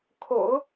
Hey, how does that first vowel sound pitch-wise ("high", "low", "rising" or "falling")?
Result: low